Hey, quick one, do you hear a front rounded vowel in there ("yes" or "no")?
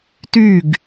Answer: yes